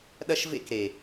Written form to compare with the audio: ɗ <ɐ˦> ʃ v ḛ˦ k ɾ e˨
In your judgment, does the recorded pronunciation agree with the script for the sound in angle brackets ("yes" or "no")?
yes